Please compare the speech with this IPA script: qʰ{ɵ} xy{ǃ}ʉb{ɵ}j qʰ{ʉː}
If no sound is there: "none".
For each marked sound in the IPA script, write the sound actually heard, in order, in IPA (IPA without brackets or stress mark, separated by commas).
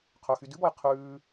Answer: ɵ, d, ɔ, ʉː